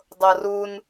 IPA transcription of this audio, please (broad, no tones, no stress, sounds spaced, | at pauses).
dˤ ɤ r u n